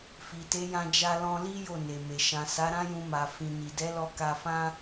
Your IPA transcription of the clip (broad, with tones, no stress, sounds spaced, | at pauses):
f i˨ t e˨˦ j ã˧ d͡ʒ a˧ l ɔ̃˧ l i˦ j o˦˨ n e˨ m e˨ ʃ ã˨ s a˨˦ ɾ ã˦ j ũ˧ m a˨ f ĩ˨ n i˨ d ɛ˨˦ l ɔ˧ k a˧ f ã˦